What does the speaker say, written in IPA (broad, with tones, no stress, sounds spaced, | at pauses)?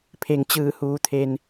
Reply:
pʰ e˩ ŋ t͡ɕ ɯː˧˩ h uː˩ t̪ʰ e˩ n